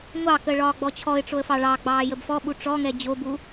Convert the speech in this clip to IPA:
ŋʷ ɑ k ə ɭ ɒː ɡ͡b ɔ t͡ɕʰ ɔ ɪ̯ ʈ͡ʂ o ə̯ f ɑ ɭ ɑ ɡ͡b ɑː j ə b f ɔ ɓ u ʈ͡ʂ ɔ ŋ ɛ d͡ʑ o b u

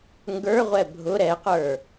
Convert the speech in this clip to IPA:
ŋ ɡ ə˞ ʁʷ ɛ bʱ ʊ ɾ ɛ q ə˞

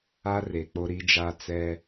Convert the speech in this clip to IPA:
a˦ r e˨ k͡p o˦ ɾ i˦ d͡ʒ a˦ t͡s ɛ˦

